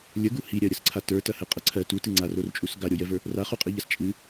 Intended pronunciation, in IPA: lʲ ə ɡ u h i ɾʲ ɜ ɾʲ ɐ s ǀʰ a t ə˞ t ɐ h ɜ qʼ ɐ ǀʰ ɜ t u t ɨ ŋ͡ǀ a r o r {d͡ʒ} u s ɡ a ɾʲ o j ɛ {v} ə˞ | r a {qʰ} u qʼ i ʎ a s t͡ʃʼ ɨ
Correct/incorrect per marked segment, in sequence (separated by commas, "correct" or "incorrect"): incorrect, correct, incorrect